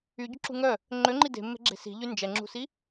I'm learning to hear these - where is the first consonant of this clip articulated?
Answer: palate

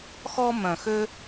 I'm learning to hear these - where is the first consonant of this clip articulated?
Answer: velum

